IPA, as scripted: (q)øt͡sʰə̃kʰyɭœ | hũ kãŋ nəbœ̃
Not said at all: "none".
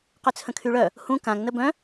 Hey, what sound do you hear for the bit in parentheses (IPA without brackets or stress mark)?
q